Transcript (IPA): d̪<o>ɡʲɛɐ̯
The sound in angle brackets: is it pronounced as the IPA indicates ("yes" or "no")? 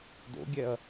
no